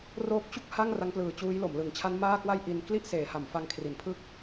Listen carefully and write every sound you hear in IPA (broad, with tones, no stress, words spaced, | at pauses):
roː˦˥k̚t͡ɕu˥˩k̚ ha˥˩ŋ ra˦˥ŋplɯː˨˩ t͡ɕuː˦˥jlo˩˦mlɯ˨˩ŋ t͡ɕʰa˦˥nmaː˥˩kwa˥˩j ʔi˧n kli˥˩ʔ seː˩˦ha˩˦mfa˧ŋkʰri˩˦n pʰɯ˥˩k̚